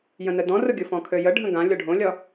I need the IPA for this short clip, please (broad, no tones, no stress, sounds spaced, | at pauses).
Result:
j ə̃ n ə d ɔ̃ r ʊ ɡʲ ʊ f ɔ̃ kʰ ø j ə ɖʱ ə̃ ɡ ã lʲ ɔ ɖʱ õ lʲ ɒ